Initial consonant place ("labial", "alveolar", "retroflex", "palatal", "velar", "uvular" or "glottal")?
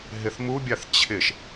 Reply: glottal